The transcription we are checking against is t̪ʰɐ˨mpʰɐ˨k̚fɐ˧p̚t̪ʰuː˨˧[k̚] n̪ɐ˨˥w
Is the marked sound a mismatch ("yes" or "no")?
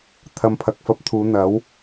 yes